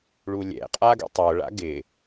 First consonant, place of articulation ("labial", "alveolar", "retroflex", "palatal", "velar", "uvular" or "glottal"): retroflex